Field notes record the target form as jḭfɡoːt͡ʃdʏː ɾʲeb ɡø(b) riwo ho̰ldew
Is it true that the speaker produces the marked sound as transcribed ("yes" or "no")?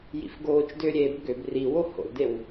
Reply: yes